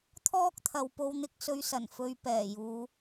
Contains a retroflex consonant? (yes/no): no